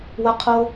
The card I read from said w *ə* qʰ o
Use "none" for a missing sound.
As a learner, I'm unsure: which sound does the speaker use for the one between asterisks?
ə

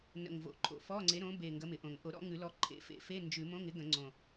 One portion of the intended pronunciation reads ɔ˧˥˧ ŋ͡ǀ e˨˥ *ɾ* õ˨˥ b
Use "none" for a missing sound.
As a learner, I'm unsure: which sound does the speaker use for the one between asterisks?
ɾ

